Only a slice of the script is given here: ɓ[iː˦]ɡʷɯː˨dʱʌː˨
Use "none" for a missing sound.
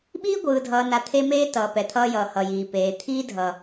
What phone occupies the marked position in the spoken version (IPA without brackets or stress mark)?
iː˦